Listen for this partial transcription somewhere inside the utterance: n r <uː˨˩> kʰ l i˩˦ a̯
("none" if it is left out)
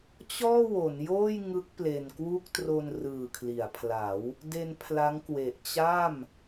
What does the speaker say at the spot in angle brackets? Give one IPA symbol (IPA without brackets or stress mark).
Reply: ɯː˨˩